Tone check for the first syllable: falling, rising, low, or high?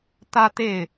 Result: high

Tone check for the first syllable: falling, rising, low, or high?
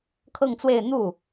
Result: falling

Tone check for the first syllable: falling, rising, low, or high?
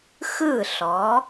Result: falling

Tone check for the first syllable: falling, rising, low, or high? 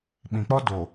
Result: low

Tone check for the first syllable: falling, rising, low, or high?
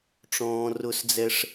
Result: high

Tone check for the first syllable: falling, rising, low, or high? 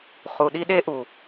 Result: low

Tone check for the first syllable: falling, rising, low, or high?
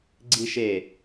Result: high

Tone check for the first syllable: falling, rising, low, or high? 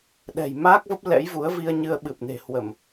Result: low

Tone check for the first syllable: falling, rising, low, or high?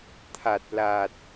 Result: low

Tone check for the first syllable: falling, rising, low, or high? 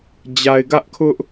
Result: low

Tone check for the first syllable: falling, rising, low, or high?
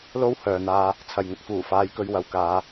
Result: high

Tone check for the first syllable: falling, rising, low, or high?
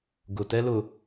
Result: low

